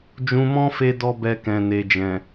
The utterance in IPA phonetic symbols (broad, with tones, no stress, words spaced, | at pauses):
d͡ʒũ˧mɔ̃˦fe˧dɔ˧ bɛ˧kɛ̃˨ne˨d͡ʒɛ̃˨